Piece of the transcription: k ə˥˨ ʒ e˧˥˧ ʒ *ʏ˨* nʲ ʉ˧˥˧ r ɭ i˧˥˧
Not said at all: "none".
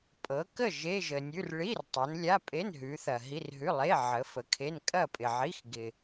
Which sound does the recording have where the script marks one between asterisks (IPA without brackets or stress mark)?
ə˨